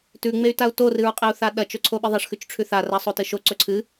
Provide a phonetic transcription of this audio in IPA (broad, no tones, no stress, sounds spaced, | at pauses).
t ʉ ŋ͡m e y̯ t a u̯ t o r ɨ ɹ qʼ e u̯ θ a ɗ ɐ t͡ʃ ɵ ǀʰ o ɓ i ðˤ ɐ ʂ x ʉ t͡ʃ ʈ͡ʂʰ ʉ θ a r a sˤ o t ɨ ʃ o ǀ ɵ ǀʰ ɨ